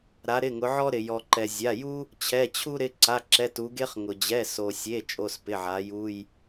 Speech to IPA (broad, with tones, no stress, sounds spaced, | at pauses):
ɾ a˩˧ ɾ ɪ˩˧˩ ŋ ʊ˩˧ ʕ ɔ˦ ɾ ɪ˩ j ɔ˩ ǃ ɛ˩ zʲ a˩˧˩ j u˦ | t͡ɕʰ ɛ˩˧˩ t͡ɕʰ u˦ ɾ ɪ˩˧˩ ǀ a˩˧˩ ǁ ɛ˩˧˩ t u˩˧ ɡ e˦ χ ŋ ʊ˩ d͡ʑ ɛ˩˧˩ s o˩ sʲ e˩˧˩ t͡ʃʼ o˩˧˩ s p ɪ˩˧˩ ʕ a˩˧ j u˩˧˩ j